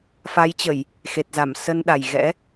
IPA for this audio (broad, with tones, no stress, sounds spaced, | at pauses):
f a˨˦ j t͡ɕ ə˧˩˨ j | x e˨˩ t̚ z a˧˩ m s ə˧ n ɗ a˨˩ j ɣ ɛ̰˧˥